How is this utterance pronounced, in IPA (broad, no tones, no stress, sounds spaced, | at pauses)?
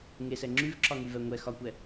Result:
ŋ e s ɛ ŋ͡ǁ y v ǁ ɒ ŋ y v ɛ ŋʷ ɛ x ɒ kʷ ɛ